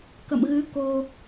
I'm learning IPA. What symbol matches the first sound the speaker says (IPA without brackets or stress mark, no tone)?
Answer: k